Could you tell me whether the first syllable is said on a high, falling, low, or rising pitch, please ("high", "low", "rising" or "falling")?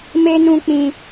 high